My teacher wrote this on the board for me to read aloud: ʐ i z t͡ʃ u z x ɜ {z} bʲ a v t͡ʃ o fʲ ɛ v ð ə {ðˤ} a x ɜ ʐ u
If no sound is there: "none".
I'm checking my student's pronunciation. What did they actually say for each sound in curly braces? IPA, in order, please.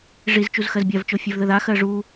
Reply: z, ð

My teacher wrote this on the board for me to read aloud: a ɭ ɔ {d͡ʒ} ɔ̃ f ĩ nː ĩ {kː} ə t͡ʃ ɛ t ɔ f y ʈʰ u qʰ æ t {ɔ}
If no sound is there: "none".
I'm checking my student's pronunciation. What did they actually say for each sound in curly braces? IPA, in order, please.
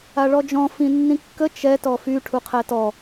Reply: d͡ʒ, kː, ɔ

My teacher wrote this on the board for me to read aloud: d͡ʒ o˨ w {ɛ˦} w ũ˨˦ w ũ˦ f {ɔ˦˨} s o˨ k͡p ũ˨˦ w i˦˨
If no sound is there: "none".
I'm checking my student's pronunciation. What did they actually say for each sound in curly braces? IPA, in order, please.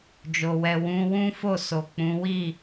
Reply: ɛ˨, o˦˨

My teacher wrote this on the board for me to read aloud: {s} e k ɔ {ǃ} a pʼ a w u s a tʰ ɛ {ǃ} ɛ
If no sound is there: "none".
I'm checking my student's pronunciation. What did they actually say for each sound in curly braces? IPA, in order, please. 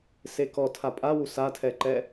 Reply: s, tʰ, ǃ

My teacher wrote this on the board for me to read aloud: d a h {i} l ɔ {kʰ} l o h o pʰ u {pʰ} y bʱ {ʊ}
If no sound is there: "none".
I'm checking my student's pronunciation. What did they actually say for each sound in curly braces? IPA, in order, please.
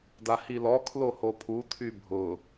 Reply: i, kʰ, tʰ, ʊ

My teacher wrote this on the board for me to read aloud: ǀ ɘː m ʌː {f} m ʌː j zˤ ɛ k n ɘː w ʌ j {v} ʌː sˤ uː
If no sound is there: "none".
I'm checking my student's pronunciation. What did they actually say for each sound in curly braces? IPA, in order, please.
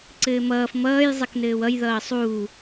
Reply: f, ð

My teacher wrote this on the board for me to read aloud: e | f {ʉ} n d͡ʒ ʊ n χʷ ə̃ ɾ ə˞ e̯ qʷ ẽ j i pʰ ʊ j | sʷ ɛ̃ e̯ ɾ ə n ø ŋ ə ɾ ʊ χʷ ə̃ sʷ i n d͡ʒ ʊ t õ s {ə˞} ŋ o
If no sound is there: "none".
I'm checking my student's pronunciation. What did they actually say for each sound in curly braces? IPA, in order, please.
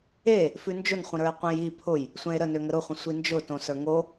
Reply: ʉ, ə˞

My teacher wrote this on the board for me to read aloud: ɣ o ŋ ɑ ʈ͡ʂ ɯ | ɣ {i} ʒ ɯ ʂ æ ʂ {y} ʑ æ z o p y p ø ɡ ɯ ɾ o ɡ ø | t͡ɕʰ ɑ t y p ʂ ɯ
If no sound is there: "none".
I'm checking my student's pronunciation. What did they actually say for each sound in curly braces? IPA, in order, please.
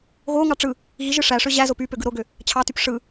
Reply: i, ø

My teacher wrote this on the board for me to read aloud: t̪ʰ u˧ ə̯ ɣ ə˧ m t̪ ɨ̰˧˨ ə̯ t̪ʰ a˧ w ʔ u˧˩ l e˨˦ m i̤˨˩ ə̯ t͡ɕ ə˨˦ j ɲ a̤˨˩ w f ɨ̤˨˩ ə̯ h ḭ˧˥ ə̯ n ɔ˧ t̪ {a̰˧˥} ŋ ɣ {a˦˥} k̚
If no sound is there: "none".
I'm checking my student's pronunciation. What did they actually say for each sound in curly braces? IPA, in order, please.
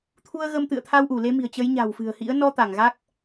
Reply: a˧˩, a˦˥

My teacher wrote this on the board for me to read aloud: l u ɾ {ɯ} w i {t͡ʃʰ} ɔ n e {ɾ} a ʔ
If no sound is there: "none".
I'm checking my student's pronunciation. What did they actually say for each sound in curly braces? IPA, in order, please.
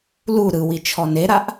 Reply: ɯ, t͡ʃʰ, ɾ

